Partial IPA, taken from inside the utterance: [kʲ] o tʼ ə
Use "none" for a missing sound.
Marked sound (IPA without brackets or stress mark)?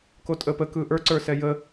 k